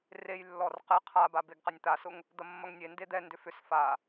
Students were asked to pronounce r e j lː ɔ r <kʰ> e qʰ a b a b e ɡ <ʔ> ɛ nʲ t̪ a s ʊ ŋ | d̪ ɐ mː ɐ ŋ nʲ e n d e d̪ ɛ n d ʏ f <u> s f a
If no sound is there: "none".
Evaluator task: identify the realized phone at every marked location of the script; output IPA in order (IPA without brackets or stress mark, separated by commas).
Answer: q, q, ʏ